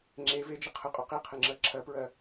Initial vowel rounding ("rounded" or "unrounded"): unrounded